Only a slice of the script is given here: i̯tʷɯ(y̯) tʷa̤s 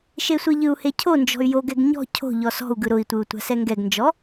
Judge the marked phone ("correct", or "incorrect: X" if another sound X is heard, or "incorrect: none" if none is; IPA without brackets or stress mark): incorrect: u̯